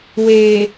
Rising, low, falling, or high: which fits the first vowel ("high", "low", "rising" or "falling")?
low